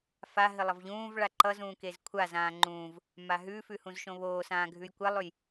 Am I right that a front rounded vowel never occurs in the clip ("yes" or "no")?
yes